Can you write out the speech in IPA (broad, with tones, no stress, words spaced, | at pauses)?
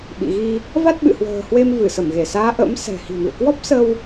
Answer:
ɓḭ˧˨ɣi˧ | va˦˥t̚ɓɨ̰˧˨hwə̤ː˨˩hwe˧m vɨ˧˩sə˧˩mɣe˧˩saː˨˦ ʔə̰˧˥msɛ̤˨˩hi̤˨˩mḭ˧˨ə̯ kwɔ˦˥p̚sə˧w